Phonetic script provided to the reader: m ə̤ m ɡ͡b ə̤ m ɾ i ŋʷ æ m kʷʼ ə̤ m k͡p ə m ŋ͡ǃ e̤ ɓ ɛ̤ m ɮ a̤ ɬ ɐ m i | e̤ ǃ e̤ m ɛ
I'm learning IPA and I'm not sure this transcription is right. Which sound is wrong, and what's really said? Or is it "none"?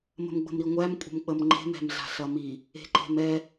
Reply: ɓ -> m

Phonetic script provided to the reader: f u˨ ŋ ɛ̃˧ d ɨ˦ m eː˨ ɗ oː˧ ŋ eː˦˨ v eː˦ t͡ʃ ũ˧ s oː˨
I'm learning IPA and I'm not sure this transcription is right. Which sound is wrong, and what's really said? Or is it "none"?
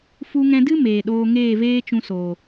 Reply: u˨ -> u˧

